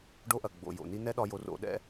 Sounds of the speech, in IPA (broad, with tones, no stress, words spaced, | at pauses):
ɖo˧ʔɐ˨ ɡ͡bo̰˨ jo̰˨ni˦ nɛ˦ɗɒ˧jo˨˦r o̰˨˦ɗɛ̰˦